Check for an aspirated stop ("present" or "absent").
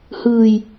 absent